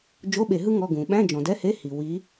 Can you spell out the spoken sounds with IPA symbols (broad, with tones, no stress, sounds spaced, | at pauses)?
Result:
d͡ʒ o˧˥˧ ɓ e˧˩˧ ɦ ɯ˥ ŋ ɔ˧˥˧ ɡ ũ˩ ɓ æ̃˧˥˧ d͡ʒ ɔ̃˩ d ɛ˧˥˧ h e˧˥˧ h i˩ w i˨˦